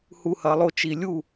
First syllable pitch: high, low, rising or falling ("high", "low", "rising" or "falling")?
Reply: low